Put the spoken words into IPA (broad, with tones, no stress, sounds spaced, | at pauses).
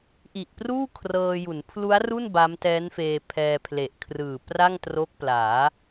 ʔ i˨˩ ʔ p r uː˥˩ kʰ r ɤː˧ j u˩˦ n pʰ l u˦˥ a̯ r u˥˩ n b a˦˥ m t ɛː˦˥ n f eː˧ pʰ ɛː˧ pʰ l e˨˩ ʔ kʰ r ɯː˨˩ p r a˥˩ ŋ t r o˦˥ k̚ p l aː˩˦